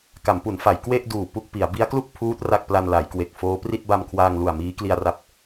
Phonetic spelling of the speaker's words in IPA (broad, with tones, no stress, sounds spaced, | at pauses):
k a˩˦ m p u˩˦ n f a˩˦ j k w e˥˩ ʔ d uː˨˩ p u˥˩ k̚ p i˩˦ a̯ b i˦˥ a̯ k l u˥˩ k̚ pʰ uː˦˥ t̚ r a˥˩ k̚ p l a˧ n l a˩˦ j k w e˨˩ k̚ f oː˦˥ p r i˥˩ t̚ b a˧ m kʰ w aː˧ ŋ l u˨˩ a̯ m iː˦˥ k l i˧ a̯ r a˦˥ p̚